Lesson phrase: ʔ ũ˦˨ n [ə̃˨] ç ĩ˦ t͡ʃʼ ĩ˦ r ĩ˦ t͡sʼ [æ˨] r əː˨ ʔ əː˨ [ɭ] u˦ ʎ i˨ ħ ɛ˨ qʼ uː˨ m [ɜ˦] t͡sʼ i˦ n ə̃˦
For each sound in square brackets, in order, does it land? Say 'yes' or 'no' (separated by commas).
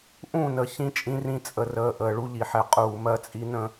no, no, yes, yes